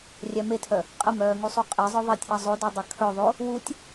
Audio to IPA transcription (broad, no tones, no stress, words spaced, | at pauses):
rʲæmetʰœ | qʼəmœːŋusˤu qʼezˤœ ðˤetʲʔɐ zˤodœdˤɐ kʰœðˤo | wutʲ